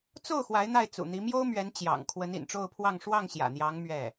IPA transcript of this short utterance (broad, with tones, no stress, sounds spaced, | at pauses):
t͡s o˥˩ ʊ̯ x w a˧˥ ɪ̯ n̪ a˥˩ ɪ̯ t͡s ṵ˨˩ n̪ i˧˥ m j o˥ ʊ̯ m ɥ ɛ˧˥ n t͡ɕ j ɑ̰˨˩ ŋ kʰ w ə˧˥ n ḭ˨˩ n ʈ͡ʂ o˥˧ ʊ̯ pʰ w ɑ˥˧ ŋ ʂ w ɑ˥˩ ŋ ɕ j ä̰˨˩ n̪ j ɑ˧˥ ŋ m ɥ ɛ˥˩